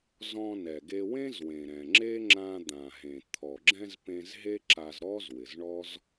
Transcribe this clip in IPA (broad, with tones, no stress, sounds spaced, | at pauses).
z ɔ̃˧ n ɛ˩ ɡ e˧ w ẽ˥ z w ẽ˩ ɾ ɛ̃˩ ŋ͡ǁ e˥ ŋ͡ǁ ã˧ d̪ ã˩ ɦ ẽ˩ t̪ʰ ɔ˩ ɡ͡ǁ ɛ̃˧ z p ẽ˧ z ɦ e˥ ǁ a˧ z ɾ ɔ˥ z w ɪ˩ z ɳ ɔ˥ z